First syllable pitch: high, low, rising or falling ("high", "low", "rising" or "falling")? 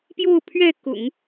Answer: falling